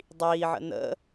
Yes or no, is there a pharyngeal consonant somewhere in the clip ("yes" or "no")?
yes